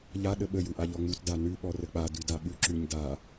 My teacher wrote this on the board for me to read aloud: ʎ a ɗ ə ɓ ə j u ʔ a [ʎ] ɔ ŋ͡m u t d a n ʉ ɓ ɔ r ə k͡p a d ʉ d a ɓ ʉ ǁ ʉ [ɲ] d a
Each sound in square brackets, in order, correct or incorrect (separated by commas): correct, correct